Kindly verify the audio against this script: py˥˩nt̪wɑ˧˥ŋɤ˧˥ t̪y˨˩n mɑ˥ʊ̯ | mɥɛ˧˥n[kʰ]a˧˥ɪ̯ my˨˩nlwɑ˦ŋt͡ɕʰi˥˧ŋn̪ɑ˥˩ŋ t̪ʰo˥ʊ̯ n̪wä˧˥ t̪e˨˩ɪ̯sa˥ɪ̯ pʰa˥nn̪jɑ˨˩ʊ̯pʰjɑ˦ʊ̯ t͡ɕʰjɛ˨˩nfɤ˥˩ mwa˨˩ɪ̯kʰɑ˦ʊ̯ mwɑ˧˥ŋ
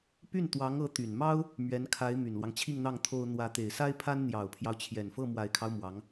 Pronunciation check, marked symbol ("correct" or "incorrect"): correct